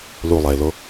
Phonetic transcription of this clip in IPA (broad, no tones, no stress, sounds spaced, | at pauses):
l u lˠ ɛ ɪ̯ l o